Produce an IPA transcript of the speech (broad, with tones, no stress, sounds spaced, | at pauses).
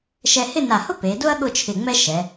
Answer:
ʃ ɛ˧ h ɪ˥˧ n a˧˩ h ʊ˥ p e˩˧ d ʊ˥ ɐ̯ ɠ ʊ˥˧ t͡ʃʰ ɪ˧˩ ŋ͡m ɛ˥ ʃ ɛ˩˧